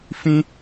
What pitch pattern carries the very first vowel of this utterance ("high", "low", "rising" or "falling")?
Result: high